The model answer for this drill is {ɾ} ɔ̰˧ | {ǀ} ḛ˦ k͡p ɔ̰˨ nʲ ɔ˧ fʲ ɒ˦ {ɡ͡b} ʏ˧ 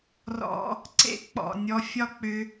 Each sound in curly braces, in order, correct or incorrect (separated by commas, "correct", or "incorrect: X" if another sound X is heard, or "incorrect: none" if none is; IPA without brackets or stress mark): incorrect: r, correct, incorrect: k͡p